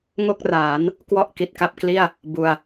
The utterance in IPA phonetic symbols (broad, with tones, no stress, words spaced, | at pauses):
ŋo˥˩k̚raː˩˦n | kwɔ˥˩ʔki˨˩t̚ka˥˩p̚kli˥˩a̯ | bu˧a̯